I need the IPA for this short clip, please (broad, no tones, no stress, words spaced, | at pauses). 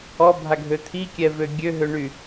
ɔbʱaɡʱø t̪ʰikʲɛvø ɡʲøɦøɳy